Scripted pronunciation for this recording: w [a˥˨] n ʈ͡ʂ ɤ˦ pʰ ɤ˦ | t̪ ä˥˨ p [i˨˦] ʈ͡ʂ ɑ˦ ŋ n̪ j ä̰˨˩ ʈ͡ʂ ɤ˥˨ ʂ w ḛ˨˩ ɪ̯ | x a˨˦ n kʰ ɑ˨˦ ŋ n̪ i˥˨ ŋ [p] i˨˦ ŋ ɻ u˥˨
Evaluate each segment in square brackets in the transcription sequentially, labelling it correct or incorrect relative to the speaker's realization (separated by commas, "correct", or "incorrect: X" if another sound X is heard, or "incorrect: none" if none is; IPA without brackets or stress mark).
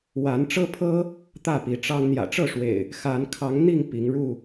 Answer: incorrect: a˨˦, correct, correct